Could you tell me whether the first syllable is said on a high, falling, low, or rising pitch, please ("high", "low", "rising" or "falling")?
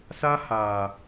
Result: high